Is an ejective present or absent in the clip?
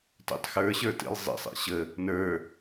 absent